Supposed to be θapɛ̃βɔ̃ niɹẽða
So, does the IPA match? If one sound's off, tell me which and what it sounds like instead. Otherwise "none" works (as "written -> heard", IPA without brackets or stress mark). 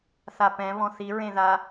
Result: n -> θ